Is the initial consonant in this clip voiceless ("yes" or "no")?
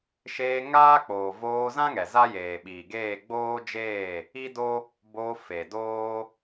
yes